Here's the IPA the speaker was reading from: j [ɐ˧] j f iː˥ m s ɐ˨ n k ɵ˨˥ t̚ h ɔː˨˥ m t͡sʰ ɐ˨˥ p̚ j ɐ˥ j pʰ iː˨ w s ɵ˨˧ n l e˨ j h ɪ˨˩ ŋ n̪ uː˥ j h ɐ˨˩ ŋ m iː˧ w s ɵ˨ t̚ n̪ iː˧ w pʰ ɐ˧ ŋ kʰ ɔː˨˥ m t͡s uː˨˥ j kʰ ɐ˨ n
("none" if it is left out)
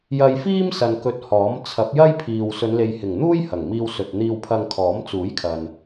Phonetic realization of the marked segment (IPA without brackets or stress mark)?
ɐ˧